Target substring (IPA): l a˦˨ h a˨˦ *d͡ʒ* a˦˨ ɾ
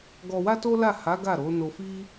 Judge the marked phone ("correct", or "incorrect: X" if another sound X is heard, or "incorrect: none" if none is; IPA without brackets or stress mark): incorrect: ɡ